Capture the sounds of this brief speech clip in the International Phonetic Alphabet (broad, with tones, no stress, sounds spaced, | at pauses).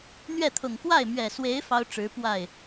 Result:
n̪ ɥ ɛ˥˩ t̪ʰ ʊ˨˩ ŋ k w a˥˩ ɪ̯ m ɥ ɛ˨˩ s w e˧˥ ɪ̯ f ɑ˥ ʊ̯ ʈ͡ʂ ɻ̩˧˥ p w a˥˩ ɪ̯